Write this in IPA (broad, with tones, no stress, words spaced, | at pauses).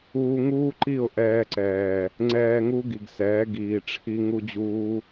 uː˧ ŋuː˦ǃi˦˨ʊ̯ ʔɛː˧ǀɛː˨ | ŋ͡ǀɛː˧ŋu˦ɡi˨ɡsɛː˨˦ ɡiː˨ʈ͡ʂʰi˦ ŋu˦d͡ʑuː˦